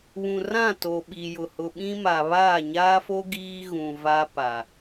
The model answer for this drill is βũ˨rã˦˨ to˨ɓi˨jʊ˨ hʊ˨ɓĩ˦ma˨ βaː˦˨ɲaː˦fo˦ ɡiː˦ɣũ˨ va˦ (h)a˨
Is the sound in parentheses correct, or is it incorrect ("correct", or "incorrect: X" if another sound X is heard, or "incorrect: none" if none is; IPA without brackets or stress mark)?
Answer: incorrect: p